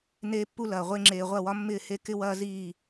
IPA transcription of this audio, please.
n eː˦ pː u˦ l ɐː˨ ʁʷ e˧ ŋ͡ǁ eː˨ ʁʷ ɐ˦˨ w ɒ˦ mː ɪː˦˨ h e˦ k ɪ˦ w ɐː˦ z iː˦˨

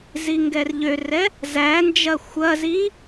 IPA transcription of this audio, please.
z i ŋ ɡ ɛ r ʎ ø r ɛ | z æ n d͡ʒ ɐ xʷ ɐ z i

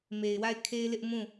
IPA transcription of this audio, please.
m e˨ ɪ̯ w a˦˨ ɪ̯ kʰ e˦ ɪ̯ l ɪ˦ ʔ m ũ˦˨

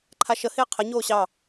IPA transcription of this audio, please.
ǃʰ a ʃ ə h ɪː qʰ ə ɲ oː ɕ ɑ

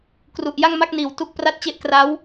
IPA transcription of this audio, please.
k r u˨˩ ʔ j a˥˩ ŋ m a˥˩ k̚ n iː˨˩ w t u˦˥ k̚ p r a˥˩ t̚ t͡ɕ e˥˩ ʔ k r a˦˥ w

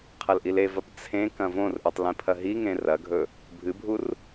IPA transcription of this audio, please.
qʰ ɐ l ʔ i l e v ɐ p t͡sʰ ẽ k ɐ̃ v õ r ʔ ɨ tˤ l ĩ pʰ ɐ ɦ i ŋ ẽ r ɐ ɡʱ ɵ | bʱ ɨ bʱ u r

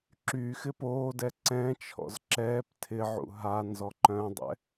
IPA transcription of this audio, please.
ǁ yː x ɪ p oː d ɛ ǀ ɛ̃ t͡ʃʰ ɔ̰ z ǁ ɛː p tʰ ɪ ʕ ṵ ɦ a n z ɔ ǃ œ̃ dˤ ɛ̰

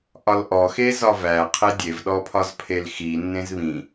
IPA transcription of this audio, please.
ʔ ɒ l ʔ ɔ x e z ɒ v æ qʰ e dʲ e v ɗ ɔ pʰ ɒ z pʰ e l x i nː ẽ z β ĩ

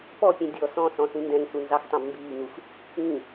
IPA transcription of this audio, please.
p ɔ pʲ ɛ̃ dʲ ɔ s ɔ̃ s ɔ̃ s ĩ n d ɛ̃ ŋ s u n z ɑ x tˤ ɑ̃ b m b iː ŋ u x | ĩ

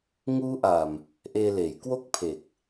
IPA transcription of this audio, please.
ŋ uː˦˥ ʔ a˨˩ m | ʔ eː˧ l eː˩˦ j k w o˥˩ k̚ pʰ e˨˩ k̚

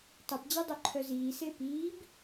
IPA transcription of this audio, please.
tˤ e p d͡ʑ ɛ dˤ ø ǃʰ œ z iː s e p iː b

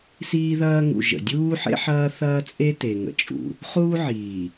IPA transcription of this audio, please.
s iː˦ ð ɐː˦ ŋ ṵ˨ ʒ ə̰˨ dʲ uː˦ ħ ḛ˦ ħ ɐː˦ θ ɐː˦ t͡sʼ e˦ t e˨ ŋ ə̰˨ t͡ʃʼ ṵ˨ | χ uː˦ ʕ iː˨

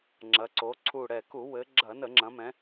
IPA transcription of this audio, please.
ŋ͡ǁ ɐ˩˧ ǀ o˩˧ ǀʰ u˨˩ ɽ ɛ˨˩ k u˧˩˧ w ɘ˩˧ ɡ͡ǁ ɐ˧˩˧ n ə˧˩˧ ŋ͡ǁ ɐ̃˩˧ m ɛ̃˩˧

